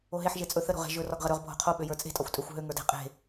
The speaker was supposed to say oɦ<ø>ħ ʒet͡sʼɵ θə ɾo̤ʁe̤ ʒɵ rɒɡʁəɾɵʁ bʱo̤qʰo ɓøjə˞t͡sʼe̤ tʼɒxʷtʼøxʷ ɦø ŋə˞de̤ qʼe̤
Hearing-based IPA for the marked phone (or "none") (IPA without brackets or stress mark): e